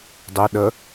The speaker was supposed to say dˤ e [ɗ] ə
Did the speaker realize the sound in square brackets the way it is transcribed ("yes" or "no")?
yes